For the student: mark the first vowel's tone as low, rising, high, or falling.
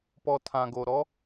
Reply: low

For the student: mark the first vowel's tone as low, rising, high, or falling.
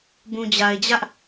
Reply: low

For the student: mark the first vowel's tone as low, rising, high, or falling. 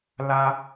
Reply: high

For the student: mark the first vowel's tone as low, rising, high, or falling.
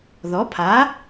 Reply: rising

